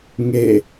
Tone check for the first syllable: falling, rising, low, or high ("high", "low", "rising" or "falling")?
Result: falling